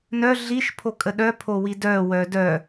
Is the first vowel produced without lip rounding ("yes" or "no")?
no